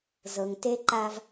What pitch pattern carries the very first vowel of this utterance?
low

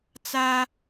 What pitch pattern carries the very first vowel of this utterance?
high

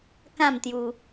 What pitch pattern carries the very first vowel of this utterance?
falling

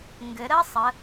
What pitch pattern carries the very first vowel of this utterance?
rising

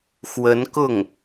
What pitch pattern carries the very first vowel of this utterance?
rising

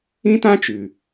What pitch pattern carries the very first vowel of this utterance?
high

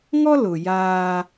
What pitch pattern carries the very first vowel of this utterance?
high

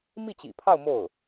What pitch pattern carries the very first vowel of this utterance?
falling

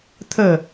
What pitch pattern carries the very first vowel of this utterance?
falling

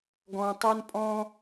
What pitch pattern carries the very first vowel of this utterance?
low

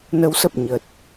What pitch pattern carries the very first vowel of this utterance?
rising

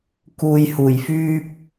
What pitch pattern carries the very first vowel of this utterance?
low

